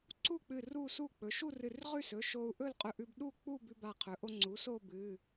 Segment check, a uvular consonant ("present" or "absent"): present